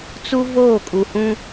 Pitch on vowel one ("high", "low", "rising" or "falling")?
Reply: high